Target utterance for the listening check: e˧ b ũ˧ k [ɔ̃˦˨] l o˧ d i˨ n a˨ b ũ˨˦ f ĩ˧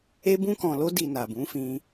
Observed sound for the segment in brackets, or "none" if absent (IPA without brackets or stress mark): ɔ̃˨